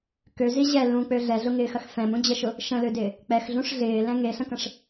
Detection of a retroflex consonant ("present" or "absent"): present